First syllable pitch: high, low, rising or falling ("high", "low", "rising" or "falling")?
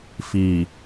low